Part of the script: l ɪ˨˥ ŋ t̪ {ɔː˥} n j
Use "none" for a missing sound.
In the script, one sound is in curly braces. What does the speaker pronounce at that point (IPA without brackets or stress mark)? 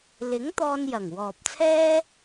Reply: ɔː˧